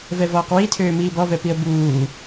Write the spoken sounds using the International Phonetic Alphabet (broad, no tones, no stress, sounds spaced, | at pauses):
v ɛ v ɔː q w i tʰ øː m iː b ɔ v ɛ p i ə̯ b uː